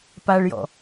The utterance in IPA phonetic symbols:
p a ɭ j ɔ̰

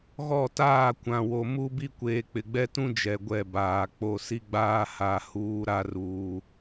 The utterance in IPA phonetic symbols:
ɣ ɔ˦˨ t aː˦˨ kʷ ã˨ w o˨ m u˦ b i˦ kʷ eː˨ k͡p ɪ˨ ɡ͡b ɛ˦ t ũ˦ d͡ʒ ɛ˨ ɡʷ ɛ˦˨ b aː˨ k͡p o˦˨ s i˦ ɡ͡b aː˦ h a˨ h uː˦ ɾ a˦ r uː˨

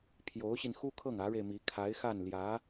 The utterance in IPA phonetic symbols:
pʰ j o˧˥ ʊ̯ ɕ i˧ n x u˥ kʰ ɤ˥˩ ŋ ä˧˥ ɻ e˧ ɪ̯ m i˧˥ kʰ a˧˥ ɪ̯ x a˥˩ n l j ä˧˥

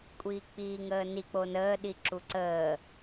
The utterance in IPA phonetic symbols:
kʷʼ iː k͡p iː ŋ əː n i k͡p o n əː ɗ i ǁ u ǀ əː

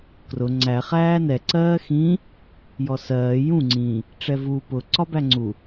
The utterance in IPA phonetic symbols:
k r ʊ ŋ͡ǀ æ χ æː n ɛ ǀ ɜː x ĩ | j ɔ s ɜː j ũ ŋ͡ǀ ĩ | ʈ͡ʂ ɛ v u p ʊ ǀ ɒ b æ ŋ͡ǀ u

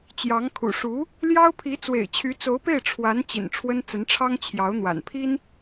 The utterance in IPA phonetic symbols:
t͡ɕ j ɑ˧˥ ŋ kʰ ṵ˨˩ ʂ u˧˥ | l j ɑ˥ ʊ̯ pʰ i˧˥ t͡s w ḛ˨˩ ɪ̯ t͡ɕʰ y˧˥ t͡s o˧˥ ʊ̯ p e˥˩ ɪ̯ ʈ͡ʂʰ w a˧˥ n t͡ɕ ḭ˨˩ n ʈ͡ʂʰ w ə˥ n t͡s ə˧˥ n ʈ͡ʂʰ ɑ˥ ŋ t͡ɕʰ j ɑ˧˥ ʊ̯ n̪ w a̰˨˩ n pʰ i˥ n

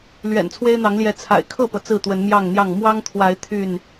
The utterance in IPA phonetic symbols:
l ɥ ɛ̰˨˩ n t͡sʰ w e˦ ɪ̯ n̪ ɑ˨˦ ŋ l j ɛ˨˦ t͡sʰ a̰˨˩ ɪ̯ kʰ ɤ˥˨ p ɤ˩ t͡s ɹ̩˥˨ t̪ w ə˨˦ n m j ɑ˥˨ ŋ n̪ j ɑ˥˨ ŋ m w ɑ˦ ŋ t̪ʰ w a˨˦ ɪ̯ t̪ʰ y˥˨ n

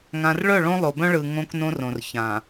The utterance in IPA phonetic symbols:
ŋ ã˨ r ɭ œ˦˨ ɭ õ˦ lˠ o˨ b œ̃˦ ɭ ɯ˨ ŋ õ˦ k n õ˦ r õ˨ r ç ã˨

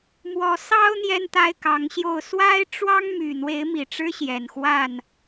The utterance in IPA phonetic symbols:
m w ɔ˨˦ s ɑ˦ ʊ̯ n̪ j ɛ˦ n t̪ a˦ ɪ̯ k ɑ˨˦ ŋ ɕ j o˥˨ ʊ̯ s w a˦ ɪ̯ ʈ͡ʂ w ɑ˦ ŋ m y˨˩ n̪ w e˨˦ ɪ̯ m i˨˩ ʈ͡ʂ ɻ̩˦ ɕ j ɛ˨˩ n x w a˥˨ n

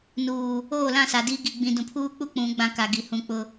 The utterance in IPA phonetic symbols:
n uː˨ | oː˦˨ l ã˦˨ s a˨ d i˦ ɡ i˨ ɡ͡b ĩ˨ d ũ˨ pʰ uː˦ k͡p u˦ k͡p ũ˨˦ ɡ͡b ã˦ k a˨ ɡ i˨ h ũ˨ k͡p ʊ˨

